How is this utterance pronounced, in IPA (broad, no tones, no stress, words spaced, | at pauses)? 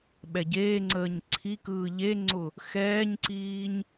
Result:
ɓɛɟeːŋ͡ǀəːɲ ǀʰikɯː ʎeŋ͡ǀʊ | xɛːɲǀiːɲ